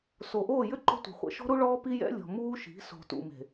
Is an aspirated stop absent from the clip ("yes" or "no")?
yes